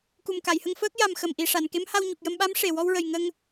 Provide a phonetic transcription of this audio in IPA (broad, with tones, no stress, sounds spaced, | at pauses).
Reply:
k u˨˩ m k a˨˩˨ j h ə˧ ŋ f əː˦˥ k̚ j a˨˩ m x ə˨˩ m ʔ i˨˩ ʂ a˨˩˨ n k e˧˥ m h a˧ w ɲ u˨˩ k̚ j ə˧ m ɓ a˧˥ m ʂ e˨˩ w ɔ˧ w ɹ ə˨˩ j ŋ ə˧ ŋ